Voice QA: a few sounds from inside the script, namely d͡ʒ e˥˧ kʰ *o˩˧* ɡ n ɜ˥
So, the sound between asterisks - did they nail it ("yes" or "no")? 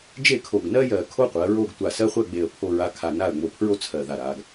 no